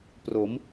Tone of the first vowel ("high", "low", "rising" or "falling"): rising